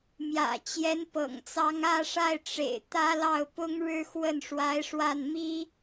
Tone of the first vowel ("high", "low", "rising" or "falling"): low